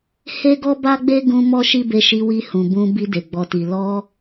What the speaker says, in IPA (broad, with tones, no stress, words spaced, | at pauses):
he˦ɡɔ˦ ba˦ɡ͡be˦ ɡũ˧ mɔ˦ʃi˦be˧ʃi˧ wi˧hũ˨bũ˧ bi˧de˨ ɡ͡bɔ˨ti˨ lɔ˧